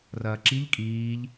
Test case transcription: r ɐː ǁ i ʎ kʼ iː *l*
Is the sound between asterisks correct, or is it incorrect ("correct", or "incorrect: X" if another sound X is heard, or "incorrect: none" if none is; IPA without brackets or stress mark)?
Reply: incorrect: ʎ